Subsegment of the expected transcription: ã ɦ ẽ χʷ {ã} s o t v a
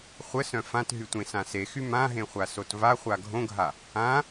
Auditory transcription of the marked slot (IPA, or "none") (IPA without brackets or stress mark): a